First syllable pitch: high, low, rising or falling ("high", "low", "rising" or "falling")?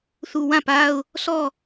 low